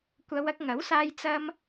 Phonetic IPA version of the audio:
kʷ ɐ˨˧ w ɐ˧ k̚ ŋ ɐ˨˥ w s aː˧ j t͡s ɐ˧ m

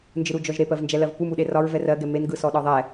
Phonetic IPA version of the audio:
n d͡ʒ ɯ ɾ u d͡ʒ ɔ ʒ ɾ e p ɜ v n d͡ʒ ɛ l ɜ v p u m u ɗ e r ɒ ɹ v ɛ r ɜ ɡ ɛ m e n ɡ ɯ s ɔ ɗ ɒ ðˤ ɛ

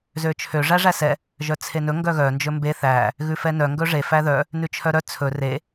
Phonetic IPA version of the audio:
z ø t͡ʃʰ ø ʐ æ ʐ æ s ɛ | ʒ œ t͡sʰ e n ɵ ŋ ɡ œ ɣ œ n d͡ʒ ɵ m b e θ æ | ɣ ʉ f ɛ n œ ŋ ɡ ɵ ʐ e f æ ð œ | n ʉ t͡ʃʰ œ ɾ œ t͡sʰ ɵ r e

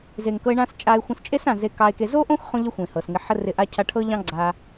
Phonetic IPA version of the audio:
z e˨ ŋ k ɤ˧ e̯ ɳ ã˦ s t͡ʃʼ a˧ e̯ xʷ ə̃˧ s t͡ʃʼ e˦ s ã˨ z e˧ k ɑ˧ e̯ k e˧ z o˦ ʔ õ˦ x χ õ˧ ʎ ə˦ xʷ ẽ˨ h ɤ˨ s ŋ ɪ˧ ħ ə˧ r ɪ˨˦ ʔ a˧ cʰ a˧ ʈʰ ɤ˦ ʎ ɑ̃˦ ɡ͡ǀ a˧

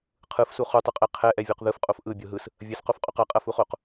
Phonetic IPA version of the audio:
qʰ ɯ f s u χ u tˤ ɯ qʼ ɛ qʰ ɛ ʔ ɛ vʲ o q ð ɯ f qʼ o f ʔ ɯ bʲ o ɦ ɯ s | vʲ ɐ s q o f qʼ o q ɐ qʼ ɐ f u χ o q

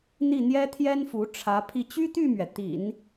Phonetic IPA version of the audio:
n̪ i˥˩ n̪ j ɛ˥ t̪ʰ j ɛ˥ n f u˧˥ ʈ͡ʂʰ ä˧˥ pʰ i˥˩ t͡ɕ y˥ t̪ y˥˩ m ɥ ɛ˩ t̪ ḭ˨˩˦ n

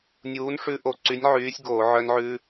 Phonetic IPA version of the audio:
nʲ uː˨˥ n ʂ ʉ˦˥ ʔ o˧˩˧ ǀ y˨˥ nʲ ʕ yː˨˥ sʲ ɡ oː˧˩˧ ʕ œ˦˥ n ʕ ʉ˦˥

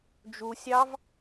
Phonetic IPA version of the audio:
d͡ʒ u sʲ ɑ v

